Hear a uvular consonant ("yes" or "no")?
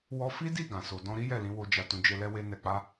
no